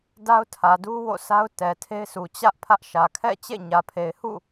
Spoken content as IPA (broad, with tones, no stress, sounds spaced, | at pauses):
d a˦ ʊ̯ tʰ ä˨ d u˦ w o̰˦˨ s a˦ ʊ̯ t ɛ˨ tʰ e˦ ɪ̯ s u˨ t͡ɕ ä˦ ʔ pʰ ä˦ ʔ ʃ ä˨ kʰ ɛ̰˦˨ t͡ɕ ḛ˦˨ ɲ ä˨ pʰ e˨ ɪ̯ h ṵ˦˨